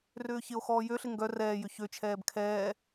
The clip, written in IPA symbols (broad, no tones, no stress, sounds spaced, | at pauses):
r ʏː ç ɪ o̯ x ɔː j ø ɬ ɪ ŋ ɡ œ r ɛː j ʏ ç ø t͡ʃʰ ɛː b kʰ ɛː